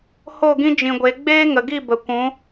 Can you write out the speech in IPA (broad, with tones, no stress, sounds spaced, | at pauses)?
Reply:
h o˦˨ ɡ ĩ˦ d͡ʒ ĩ˨ ɡʷ e˨˦ ɡ͡b eː˦ ŋ ə˨ ɡ i˦˨ b ə˨ kʷ ũ˨˦